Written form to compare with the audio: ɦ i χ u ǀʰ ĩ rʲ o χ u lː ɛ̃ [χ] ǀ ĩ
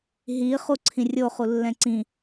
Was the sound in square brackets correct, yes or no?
no